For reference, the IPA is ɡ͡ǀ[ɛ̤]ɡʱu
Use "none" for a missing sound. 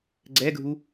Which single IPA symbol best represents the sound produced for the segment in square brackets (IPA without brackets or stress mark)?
ɛ